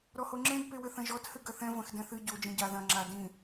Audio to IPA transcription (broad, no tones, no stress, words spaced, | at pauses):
ɾɔhoŋ͡ǁẽd pewɘθɐ̃ʒɔt hɨɡɐθɛ̃ vɐ̃xdɛ̃θɨ ɟo d͡ʒĩɟa ðɐ̃ ŋ͡ǁa dĩ